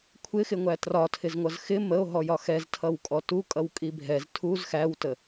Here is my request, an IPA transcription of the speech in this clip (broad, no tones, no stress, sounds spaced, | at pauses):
kʷʰ ɪ x ɪ ŋʷ æ t r ɒ tʰ ɪ z ŋʷ ʌ z x ɪ m ə o̯ ɦ ɔ j ɒ x ɛ z tʰ ʌ w kʼ ɔ t u kʼ ʌ w kʼ i bʱ ɛ z tʰ u z x æ w t ə